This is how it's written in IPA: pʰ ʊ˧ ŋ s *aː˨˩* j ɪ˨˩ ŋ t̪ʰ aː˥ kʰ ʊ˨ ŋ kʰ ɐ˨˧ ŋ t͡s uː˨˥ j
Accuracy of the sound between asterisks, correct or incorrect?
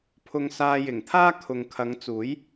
incorrect